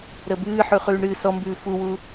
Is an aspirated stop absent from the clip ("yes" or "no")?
yes